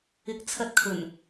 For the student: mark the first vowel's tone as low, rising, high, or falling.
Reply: rising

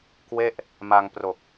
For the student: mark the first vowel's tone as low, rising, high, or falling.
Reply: falling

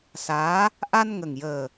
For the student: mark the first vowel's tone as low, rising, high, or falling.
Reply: rising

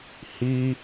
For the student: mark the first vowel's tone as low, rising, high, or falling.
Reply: high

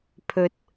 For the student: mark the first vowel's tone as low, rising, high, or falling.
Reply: rising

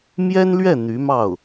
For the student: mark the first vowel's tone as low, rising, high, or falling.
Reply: high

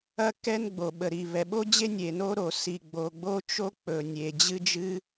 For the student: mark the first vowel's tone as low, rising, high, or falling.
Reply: high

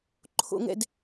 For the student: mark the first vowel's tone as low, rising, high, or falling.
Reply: high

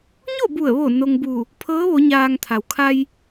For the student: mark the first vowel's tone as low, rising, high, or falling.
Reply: falling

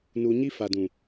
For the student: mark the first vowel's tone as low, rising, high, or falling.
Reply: low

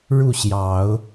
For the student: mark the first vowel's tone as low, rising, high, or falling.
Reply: falling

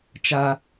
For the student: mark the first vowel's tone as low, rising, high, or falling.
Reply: high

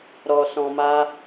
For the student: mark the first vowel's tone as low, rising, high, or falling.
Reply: low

